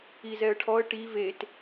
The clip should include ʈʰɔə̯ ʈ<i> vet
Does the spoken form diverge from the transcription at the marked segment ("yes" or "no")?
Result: no